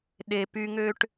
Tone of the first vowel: low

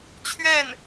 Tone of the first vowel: falling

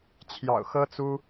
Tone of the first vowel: low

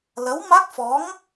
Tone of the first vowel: rising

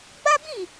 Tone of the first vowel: high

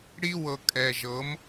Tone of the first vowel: high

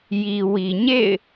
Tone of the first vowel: low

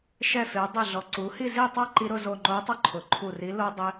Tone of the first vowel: falling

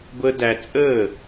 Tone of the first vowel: high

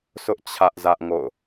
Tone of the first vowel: high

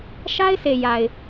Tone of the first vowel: high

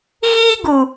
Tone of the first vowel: high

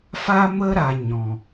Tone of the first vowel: high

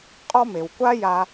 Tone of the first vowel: high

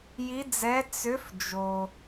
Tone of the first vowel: rising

